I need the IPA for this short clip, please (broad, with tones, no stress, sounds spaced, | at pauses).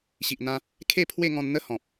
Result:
ɕ i˨ ʔ n̪ ã˧ | kʰ e˥˧ pʰ w e˥˧ ŋ ɔ̃˧ n n̪ ə˥˧ h ɔ̃˨ p̚